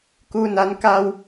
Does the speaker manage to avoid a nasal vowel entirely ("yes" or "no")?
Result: yes